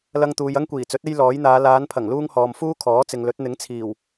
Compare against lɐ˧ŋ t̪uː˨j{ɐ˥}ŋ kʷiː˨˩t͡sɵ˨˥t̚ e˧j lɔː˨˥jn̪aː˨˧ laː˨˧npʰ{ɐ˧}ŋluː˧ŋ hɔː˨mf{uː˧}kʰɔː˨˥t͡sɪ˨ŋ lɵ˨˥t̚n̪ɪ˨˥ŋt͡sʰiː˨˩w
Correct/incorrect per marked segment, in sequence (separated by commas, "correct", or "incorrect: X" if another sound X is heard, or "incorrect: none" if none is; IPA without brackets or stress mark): correct, incorrect: ɐ˨˩, incorrect: uː˥